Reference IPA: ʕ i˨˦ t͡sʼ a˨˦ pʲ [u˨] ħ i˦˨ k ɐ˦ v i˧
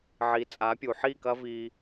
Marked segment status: correct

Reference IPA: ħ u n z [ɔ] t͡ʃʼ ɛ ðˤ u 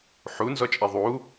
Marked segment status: correct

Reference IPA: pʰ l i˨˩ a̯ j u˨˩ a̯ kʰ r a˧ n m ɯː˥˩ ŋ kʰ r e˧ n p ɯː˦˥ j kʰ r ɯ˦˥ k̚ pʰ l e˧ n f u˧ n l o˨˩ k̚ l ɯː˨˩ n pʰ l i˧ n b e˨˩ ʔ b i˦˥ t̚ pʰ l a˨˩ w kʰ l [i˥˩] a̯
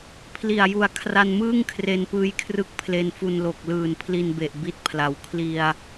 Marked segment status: incorrect: i˧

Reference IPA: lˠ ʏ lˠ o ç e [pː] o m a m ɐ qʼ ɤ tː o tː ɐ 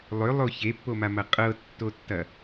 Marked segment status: correct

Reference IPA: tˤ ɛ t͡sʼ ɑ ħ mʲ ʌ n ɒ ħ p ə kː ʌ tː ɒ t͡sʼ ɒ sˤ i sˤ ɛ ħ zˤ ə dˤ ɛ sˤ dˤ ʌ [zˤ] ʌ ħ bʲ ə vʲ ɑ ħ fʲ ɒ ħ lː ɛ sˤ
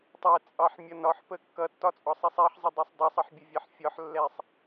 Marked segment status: incorrect: sˤ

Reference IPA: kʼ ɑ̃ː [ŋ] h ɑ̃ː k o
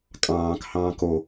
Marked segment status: incorrect: k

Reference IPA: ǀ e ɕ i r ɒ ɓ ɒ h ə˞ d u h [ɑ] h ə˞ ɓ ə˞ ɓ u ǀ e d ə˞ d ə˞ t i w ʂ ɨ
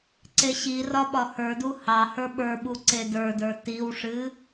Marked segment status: correct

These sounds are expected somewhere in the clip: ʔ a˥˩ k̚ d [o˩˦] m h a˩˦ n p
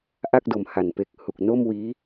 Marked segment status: correct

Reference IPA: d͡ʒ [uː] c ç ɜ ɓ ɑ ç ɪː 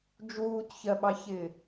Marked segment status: correct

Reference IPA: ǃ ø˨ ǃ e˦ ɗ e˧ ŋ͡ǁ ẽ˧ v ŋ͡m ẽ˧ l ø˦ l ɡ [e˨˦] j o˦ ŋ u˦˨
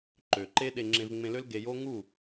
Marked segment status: incorrect: e˧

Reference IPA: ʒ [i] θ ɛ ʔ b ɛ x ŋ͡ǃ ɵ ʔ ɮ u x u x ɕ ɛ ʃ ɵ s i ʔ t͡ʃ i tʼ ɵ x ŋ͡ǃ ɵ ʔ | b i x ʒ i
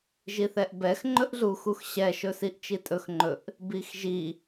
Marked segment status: correct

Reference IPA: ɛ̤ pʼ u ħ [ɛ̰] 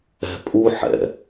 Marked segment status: correct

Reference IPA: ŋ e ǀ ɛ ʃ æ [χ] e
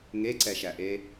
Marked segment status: incorrect: ʔ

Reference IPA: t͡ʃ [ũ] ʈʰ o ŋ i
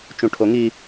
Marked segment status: correct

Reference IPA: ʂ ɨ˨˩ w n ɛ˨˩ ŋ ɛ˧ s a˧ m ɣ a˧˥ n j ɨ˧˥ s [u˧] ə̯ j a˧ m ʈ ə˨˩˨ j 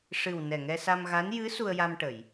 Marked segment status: correct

